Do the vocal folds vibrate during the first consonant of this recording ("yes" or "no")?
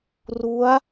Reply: yes